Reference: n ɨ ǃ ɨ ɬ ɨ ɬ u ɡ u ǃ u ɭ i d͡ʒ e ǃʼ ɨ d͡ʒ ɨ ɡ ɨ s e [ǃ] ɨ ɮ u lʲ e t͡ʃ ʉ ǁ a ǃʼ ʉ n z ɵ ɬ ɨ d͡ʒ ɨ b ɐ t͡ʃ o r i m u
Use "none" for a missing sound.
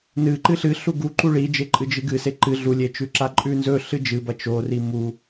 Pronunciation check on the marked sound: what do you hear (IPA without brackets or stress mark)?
ǃ